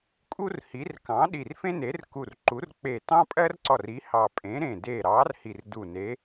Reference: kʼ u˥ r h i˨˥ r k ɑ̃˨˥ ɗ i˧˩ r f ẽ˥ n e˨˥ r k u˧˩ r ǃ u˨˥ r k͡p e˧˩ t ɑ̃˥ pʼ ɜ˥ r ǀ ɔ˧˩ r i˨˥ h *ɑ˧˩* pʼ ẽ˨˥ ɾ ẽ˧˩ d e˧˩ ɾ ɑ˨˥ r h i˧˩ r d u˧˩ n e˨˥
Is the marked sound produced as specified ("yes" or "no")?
yes